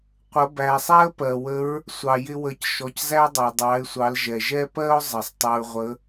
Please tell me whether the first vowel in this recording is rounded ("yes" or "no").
no